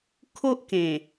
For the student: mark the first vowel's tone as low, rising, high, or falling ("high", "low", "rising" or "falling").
high